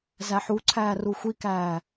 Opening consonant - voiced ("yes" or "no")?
yes